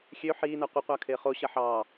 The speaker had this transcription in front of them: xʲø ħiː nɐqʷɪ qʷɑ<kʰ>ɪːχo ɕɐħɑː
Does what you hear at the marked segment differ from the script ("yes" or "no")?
no